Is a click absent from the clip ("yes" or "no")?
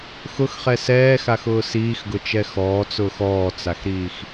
yes